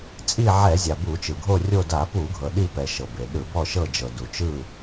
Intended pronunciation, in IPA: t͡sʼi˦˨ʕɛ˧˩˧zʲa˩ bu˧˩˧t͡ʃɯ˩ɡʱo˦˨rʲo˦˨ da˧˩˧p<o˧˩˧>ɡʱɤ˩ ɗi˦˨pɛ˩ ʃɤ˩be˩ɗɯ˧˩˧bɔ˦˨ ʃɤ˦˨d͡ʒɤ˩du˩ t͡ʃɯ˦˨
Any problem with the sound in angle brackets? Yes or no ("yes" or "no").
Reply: yes